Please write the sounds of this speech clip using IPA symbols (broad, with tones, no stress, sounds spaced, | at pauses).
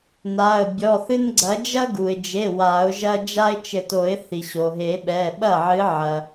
n a˩˧˩ ə̯ bʲ ɔ˩˧˩ θ ɨ˦ n ɡ͡ǀ ɐ˨˥ d͡ʒ ɐ˦ ɡ u˩ ɪ̯ d͡ʒ e˩˧˩ w a˨˩˦ ʊ̯ ʒ ɐ˦ d͡ʒ a˦ ɪ̯ t͡ʃ ɘ˨˩˦ t o˨˩˦ ɪ̯ θ i˩ ɕ o˩ ɦ e˨˩˦ ɓ ɛ˩˧˩ ɓ ɐ˥˩ ʕ ɨ˨˥ ʕ ɐ˩